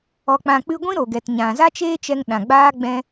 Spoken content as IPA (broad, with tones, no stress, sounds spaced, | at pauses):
ɔ˨ k͡p ã˨ k͡p ɨ˧ ɡʷ ĩ˦ ɾ o˨ ɡ ɛ˨ t ɲ ã˨ z a˦ t͡ʃ eː˦ t͡ʃ ɛ˧ ŋ ɗ ã˨ ɡ͡b aː˦ ɡ͡b ɛ̃˧